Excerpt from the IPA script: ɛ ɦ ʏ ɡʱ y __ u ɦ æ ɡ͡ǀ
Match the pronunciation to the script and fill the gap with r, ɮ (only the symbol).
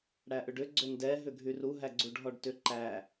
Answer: r